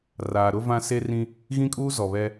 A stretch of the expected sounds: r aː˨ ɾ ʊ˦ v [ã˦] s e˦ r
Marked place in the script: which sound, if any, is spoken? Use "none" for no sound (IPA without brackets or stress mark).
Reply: ã˦